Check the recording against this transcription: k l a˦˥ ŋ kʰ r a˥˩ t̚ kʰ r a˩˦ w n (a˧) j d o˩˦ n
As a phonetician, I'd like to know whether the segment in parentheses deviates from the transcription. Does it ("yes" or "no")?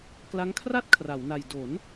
yes